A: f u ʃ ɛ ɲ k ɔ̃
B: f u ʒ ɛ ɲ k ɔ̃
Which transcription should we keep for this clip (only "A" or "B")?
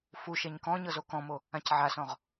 A